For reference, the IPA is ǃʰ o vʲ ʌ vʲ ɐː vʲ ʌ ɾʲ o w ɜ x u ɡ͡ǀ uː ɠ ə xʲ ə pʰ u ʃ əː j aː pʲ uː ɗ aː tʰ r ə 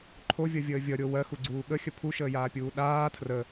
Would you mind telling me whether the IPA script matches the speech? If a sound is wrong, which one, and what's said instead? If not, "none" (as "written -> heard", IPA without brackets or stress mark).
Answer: ɐː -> əː